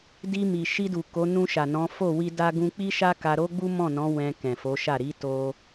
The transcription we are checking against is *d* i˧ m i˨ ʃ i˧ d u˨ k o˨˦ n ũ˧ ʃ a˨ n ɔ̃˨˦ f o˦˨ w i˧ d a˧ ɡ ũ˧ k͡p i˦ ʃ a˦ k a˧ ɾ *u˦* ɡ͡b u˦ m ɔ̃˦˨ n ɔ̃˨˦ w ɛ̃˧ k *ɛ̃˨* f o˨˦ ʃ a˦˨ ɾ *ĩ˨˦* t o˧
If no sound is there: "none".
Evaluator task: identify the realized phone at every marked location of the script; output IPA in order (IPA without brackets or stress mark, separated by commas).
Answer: d, o˦, ɛ̃˨, i˨˦